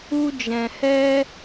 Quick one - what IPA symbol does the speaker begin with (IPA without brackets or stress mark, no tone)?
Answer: u